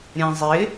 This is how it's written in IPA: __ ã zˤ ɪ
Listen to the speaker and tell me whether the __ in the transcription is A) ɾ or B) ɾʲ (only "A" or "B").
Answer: B